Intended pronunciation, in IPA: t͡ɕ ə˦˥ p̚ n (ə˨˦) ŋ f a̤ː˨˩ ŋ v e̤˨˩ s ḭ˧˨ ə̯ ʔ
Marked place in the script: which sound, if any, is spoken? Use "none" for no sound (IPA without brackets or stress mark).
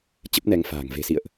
ɛ˨˦